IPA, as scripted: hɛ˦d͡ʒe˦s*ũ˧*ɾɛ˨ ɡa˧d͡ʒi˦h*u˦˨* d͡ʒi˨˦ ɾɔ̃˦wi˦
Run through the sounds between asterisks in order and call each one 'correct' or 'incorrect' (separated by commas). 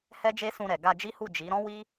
correct, correct